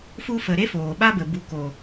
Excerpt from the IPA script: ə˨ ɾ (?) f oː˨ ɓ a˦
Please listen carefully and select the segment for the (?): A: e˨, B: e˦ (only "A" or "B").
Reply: B